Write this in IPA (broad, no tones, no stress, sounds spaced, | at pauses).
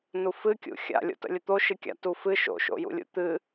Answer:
n u f ɨ kʲ ṵ xʲ a̰ lʲ o̰ t ə̰ lʲ ə t̪ o ʃ ɨ kʲ a̰ t u f ɨ ʃ o̰ ʃ o̰ j ṵ lʲ ṵ t̪ ɨ